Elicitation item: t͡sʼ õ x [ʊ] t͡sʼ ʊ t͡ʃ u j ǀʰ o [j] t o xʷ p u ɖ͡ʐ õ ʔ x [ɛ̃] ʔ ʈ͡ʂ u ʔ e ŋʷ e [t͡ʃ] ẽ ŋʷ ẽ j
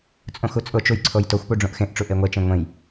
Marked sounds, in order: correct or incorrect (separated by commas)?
incorrect, correct, incorrect, correct